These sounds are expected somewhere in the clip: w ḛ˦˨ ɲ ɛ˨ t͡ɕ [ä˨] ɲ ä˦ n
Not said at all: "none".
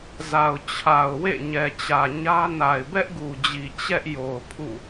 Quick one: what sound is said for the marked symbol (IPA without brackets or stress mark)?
ä˨